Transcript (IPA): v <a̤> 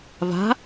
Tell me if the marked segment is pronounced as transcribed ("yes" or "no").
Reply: yes